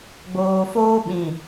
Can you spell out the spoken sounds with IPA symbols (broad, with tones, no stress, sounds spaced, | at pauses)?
ɡ͡b oː˨ f oː˦ ɓ ĩ˨